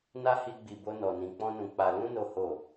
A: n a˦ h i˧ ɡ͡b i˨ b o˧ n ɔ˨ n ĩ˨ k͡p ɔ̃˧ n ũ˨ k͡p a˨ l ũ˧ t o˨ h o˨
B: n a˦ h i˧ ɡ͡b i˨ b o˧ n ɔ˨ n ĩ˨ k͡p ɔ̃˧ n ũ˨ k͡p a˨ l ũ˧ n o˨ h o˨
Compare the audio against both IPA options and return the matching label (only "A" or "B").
B